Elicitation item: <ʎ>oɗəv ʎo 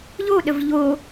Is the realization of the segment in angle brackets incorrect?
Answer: no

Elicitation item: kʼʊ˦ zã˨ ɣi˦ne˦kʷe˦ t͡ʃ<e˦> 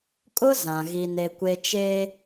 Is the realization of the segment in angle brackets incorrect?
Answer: yes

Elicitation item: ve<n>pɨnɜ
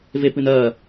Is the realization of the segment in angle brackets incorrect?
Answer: yes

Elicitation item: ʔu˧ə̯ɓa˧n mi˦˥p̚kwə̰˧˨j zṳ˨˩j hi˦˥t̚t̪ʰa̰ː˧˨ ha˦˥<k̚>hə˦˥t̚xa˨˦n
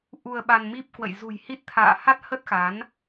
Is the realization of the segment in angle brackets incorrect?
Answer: yes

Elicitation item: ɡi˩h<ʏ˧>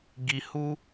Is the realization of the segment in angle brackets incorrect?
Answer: yes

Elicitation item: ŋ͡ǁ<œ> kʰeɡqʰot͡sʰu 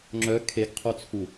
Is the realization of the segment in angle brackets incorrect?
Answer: no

